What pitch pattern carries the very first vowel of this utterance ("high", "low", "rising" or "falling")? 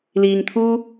low